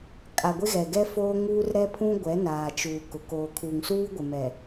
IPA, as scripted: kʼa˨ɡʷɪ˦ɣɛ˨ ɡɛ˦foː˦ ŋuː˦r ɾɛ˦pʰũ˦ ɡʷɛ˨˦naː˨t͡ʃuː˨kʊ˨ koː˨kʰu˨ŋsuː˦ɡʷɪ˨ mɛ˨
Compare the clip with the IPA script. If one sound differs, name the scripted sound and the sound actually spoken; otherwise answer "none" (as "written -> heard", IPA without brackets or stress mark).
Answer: none